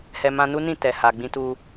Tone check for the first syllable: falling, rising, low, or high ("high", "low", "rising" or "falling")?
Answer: low